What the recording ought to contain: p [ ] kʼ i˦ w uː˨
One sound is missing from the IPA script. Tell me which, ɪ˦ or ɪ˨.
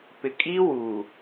ɪ˨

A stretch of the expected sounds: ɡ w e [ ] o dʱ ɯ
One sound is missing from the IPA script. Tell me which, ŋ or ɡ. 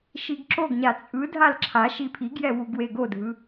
ɡ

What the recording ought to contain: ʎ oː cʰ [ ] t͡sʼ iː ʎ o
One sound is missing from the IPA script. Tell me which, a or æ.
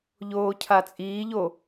a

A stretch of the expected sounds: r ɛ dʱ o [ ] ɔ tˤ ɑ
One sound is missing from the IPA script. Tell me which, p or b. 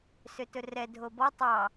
b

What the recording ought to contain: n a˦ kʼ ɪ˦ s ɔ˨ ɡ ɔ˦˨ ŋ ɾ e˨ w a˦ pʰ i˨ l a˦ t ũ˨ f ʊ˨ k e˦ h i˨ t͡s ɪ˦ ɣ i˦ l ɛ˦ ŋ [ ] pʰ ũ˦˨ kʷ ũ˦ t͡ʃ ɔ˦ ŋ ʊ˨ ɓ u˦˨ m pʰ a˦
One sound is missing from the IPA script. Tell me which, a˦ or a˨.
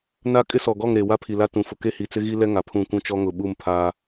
a˨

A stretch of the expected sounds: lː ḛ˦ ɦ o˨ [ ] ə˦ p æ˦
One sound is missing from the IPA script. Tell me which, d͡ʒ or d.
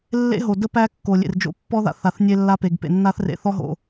d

